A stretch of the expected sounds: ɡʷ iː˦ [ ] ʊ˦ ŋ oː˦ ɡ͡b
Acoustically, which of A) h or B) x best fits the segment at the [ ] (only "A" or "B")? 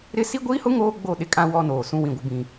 A